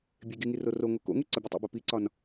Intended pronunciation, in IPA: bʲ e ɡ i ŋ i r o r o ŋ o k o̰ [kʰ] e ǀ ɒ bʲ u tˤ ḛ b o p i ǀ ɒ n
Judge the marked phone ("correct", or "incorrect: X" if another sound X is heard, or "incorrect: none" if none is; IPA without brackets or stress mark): incorrect: ŋ